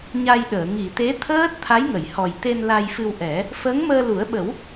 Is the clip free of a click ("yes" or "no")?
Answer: yes